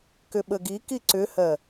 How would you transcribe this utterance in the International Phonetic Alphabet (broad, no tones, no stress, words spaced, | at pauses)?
kʏɓəɡiki ǀʏhɜ